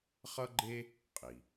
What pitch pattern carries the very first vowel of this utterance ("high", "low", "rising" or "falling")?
high